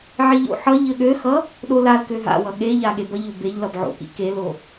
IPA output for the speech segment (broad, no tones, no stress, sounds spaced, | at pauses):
ʕ i ʎ o̰ ħ ʌ ʎ ɘ ɠ ø x ʌ | ɗ o l a l k ø ɦ a̰ w ʌ ɠ e ʎ a ɠ e b ʌ ʎ o b e ʎ l ʌ b ʕ o̰ k ḭ k e l o